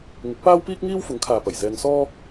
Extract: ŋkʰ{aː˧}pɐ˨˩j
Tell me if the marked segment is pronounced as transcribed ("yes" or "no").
no